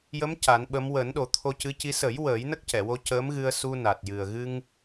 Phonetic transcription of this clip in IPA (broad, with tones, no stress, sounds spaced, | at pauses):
j ə˧˥ m c a˨˩˦ n ɓ ə˧˥ m w əː˨˩˦ n ɗ o˨˩˦ t̪ʰ o˧ c ɨ˧˥ c i˧˥ s ə˨˩˦ j w əː˨˩˦ j n ə˦˥ k̚ c ɛ˨˩˨ w o˧ c əː˧˥ m ɣ ɨ˧ ə̯ s u˧ n a˨˩ t̚ j ɨ˨˩ ə̯ ɣ ɨ˧ ŋ